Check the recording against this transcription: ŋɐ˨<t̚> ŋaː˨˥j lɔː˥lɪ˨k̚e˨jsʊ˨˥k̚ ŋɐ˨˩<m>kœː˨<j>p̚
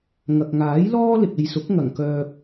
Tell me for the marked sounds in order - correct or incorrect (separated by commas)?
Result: incorrect, incorrect, incorrect